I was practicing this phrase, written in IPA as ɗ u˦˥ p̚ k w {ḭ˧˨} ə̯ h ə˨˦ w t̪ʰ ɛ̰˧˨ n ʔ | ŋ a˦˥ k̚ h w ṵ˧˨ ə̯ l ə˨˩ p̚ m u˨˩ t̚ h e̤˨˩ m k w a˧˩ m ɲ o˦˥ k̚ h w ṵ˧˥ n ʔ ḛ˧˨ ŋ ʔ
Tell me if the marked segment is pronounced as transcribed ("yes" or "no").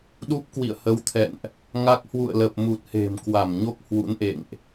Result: yes